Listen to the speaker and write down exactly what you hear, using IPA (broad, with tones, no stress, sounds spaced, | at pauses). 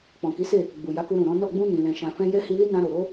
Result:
k͡p ɔ̃˨ k i˨˦ s e˦˨ | ɡ͡b u˨ j a˨˦ k u˧ ɾ ũ˨ ɾ ɔ̃˨˦ n ɔ˦˨ ɡ͡b ũ˧ n ĩ˨ l ɛ̃˨ ʃ ã˨ f ɛ̃˧ j ɛ˦ h i˧ l i˦ n ã˧ ɾ o˨ ɾ o˧